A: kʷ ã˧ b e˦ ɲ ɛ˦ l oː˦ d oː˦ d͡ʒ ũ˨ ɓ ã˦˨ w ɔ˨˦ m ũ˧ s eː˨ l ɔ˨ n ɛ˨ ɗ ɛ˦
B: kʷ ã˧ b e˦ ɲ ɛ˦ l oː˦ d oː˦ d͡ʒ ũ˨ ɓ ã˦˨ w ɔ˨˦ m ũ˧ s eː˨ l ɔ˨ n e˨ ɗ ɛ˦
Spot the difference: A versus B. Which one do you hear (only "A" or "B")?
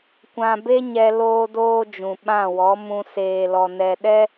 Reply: A